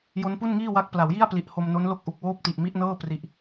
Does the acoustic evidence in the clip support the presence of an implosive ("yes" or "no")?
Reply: no